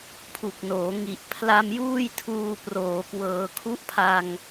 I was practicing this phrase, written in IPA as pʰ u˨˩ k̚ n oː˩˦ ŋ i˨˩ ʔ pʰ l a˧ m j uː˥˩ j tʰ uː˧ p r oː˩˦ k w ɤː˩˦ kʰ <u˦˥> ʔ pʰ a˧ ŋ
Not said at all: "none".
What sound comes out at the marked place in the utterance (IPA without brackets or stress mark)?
u˦˥